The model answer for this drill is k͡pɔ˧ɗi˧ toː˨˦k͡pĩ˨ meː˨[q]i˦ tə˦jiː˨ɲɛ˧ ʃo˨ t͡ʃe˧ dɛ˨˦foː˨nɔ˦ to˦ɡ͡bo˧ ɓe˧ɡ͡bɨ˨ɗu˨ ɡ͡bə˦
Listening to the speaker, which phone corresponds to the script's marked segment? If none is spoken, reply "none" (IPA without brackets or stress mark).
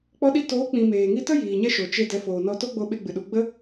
ŋ